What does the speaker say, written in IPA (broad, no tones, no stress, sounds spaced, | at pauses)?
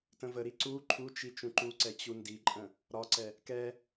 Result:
t ə̃ v ə ɾ i ǀ u ǃʰ u t͡ʃ i t͡ʃ ũ ǃ u ǀ ɛ t͡ɕ u n d i ǃʼ ə̃ | ɾ ɒ ǀ ɛ | k ɛ